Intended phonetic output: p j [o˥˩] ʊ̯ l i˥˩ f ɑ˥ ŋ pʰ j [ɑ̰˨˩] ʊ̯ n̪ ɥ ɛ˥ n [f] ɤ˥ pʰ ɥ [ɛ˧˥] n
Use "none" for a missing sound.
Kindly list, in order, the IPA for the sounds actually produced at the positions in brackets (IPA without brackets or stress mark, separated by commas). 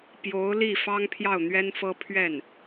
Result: o˧˥, ɑ˥˩, f, ɛ˥˩